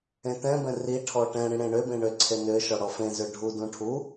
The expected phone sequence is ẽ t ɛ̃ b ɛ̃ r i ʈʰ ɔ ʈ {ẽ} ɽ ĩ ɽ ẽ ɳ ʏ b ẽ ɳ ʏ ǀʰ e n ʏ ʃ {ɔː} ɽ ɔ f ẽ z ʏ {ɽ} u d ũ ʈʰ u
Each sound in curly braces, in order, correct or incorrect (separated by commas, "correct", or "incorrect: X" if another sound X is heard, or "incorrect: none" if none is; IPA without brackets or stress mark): incorrect: ɛ̃, incorrect: ɔ, incorrect: ɖʱ